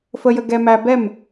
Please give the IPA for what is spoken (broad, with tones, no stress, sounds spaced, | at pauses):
f ə˦ j ə˦ ɡ ɛ˦ m æ˦ b ɛ˦˨ m